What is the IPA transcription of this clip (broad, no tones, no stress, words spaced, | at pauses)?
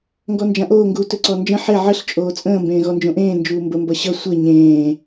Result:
ŋɡɔnd͡ʒãʔoː ŋɡuːtɵǀɔnd͡ʒə̃ ħe ʕəɬ t͡ʃʼoːt͡sʼə̃ː mbẽːɣɔnd͡ʒõʔẽː nd͡ʒuːmbə mbʌɕʌ sʷe ɲẽː